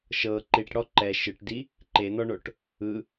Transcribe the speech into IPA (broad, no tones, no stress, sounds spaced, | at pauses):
ʃ ɤ ǃ i ʈ ɽ ɔ ǃ ɛ ʃ ɯ ʈ d i | ǃ e n̪ ɔ ɳ o ʈ | ɯ